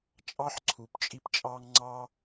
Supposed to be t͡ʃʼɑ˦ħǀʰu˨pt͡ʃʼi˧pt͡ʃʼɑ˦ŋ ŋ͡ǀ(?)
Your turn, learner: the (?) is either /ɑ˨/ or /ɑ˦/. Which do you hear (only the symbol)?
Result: ɑ˦